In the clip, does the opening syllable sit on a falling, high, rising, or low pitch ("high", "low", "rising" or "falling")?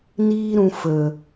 high